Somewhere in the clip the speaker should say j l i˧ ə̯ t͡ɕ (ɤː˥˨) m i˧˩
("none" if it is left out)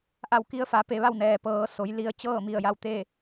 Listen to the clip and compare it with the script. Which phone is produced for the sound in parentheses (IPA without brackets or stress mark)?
ɤː˥˨